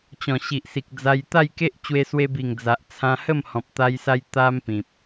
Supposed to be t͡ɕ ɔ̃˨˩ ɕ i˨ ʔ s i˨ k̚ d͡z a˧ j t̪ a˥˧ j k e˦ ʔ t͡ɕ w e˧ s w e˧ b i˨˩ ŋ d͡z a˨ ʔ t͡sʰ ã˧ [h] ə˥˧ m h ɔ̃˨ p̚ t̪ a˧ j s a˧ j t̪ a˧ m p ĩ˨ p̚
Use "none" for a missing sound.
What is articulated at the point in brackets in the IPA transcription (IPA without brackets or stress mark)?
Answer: h